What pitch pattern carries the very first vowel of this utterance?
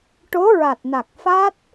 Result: rising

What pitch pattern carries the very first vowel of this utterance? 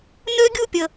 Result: high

